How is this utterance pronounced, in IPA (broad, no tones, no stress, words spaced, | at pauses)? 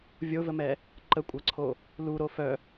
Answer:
vʲovəmɛ | ǃəkʷʼɐǀʰo | luɾo fœ